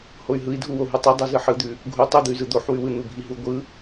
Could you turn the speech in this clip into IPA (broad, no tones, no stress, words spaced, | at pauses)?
hoy̯ɦɯi̯dʱuwo ɦutˤɯ dˤuzɯħɯd̪ʉ | ɡʱu tˤud̪ɯy̯zɯ d̪oħwʉwɯ n̪ubʱiɦu ɡʷɯ